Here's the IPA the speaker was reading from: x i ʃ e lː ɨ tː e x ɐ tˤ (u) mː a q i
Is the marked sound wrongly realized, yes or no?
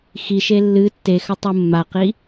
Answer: no